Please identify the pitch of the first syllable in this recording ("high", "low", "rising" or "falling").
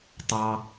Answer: high